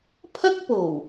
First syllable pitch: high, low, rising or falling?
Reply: high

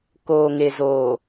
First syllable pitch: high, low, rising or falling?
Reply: low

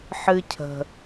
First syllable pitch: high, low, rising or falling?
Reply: high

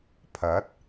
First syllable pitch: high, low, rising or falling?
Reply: rising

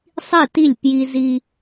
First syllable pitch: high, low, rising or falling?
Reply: falling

